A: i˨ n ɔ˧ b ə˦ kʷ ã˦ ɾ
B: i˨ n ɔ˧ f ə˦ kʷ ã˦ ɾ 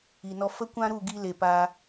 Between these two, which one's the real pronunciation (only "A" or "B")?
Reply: B